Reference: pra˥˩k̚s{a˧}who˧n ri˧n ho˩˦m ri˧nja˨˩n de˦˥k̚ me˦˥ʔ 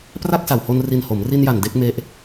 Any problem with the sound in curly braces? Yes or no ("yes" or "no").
yes